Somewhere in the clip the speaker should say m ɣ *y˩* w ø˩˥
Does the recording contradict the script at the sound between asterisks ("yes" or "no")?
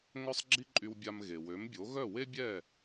yes